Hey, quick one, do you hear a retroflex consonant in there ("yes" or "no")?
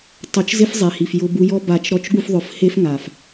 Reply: no